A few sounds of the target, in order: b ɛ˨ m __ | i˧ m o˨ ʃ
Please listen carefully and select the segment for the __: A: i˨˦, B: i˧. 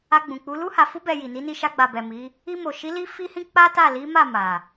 A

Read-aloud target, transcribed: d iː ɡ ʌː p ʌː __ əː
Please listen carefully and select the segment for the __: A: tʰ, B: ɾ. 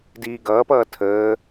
A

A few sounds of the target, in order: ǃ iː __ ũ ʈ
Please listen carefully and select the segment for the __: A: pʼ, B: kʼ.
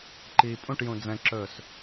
A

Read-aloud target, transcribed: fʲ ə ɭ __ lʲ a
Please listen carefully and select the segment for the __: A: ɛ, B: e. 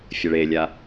B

